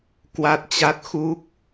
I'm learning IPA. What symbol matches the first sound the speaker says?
k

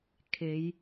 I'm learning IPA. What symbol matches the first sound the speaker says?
kʰ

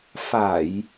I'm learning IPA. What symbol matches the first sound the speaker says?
f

